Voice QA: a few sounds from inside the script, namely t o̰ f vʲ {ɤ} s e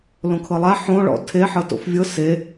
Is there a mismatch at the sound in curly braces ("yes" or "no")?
no